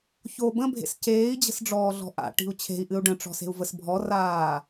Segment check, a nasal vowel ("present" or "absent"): present